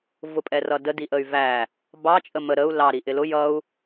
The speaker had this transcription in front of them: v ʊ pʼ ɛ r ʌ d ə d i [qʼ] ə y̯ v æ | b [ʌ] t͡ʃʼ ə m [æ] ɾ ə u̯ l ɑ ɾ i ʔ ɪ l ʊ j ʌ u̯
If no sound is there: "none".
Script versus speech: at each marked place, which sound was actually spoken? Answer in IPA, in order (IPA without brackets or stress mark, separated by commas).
ʔ, ɑ, ə